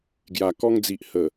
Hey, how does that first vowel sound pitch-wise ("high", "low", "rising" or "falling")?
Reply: low